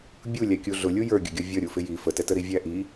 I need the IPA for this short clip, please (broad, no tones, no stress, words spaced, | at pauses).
bʲulʲæ kʲuɮʊlʲu jə˞ɡʲʊɡʲɔ vʲʌ ɾʲufɪji fətɛtəɾi vʲæʔi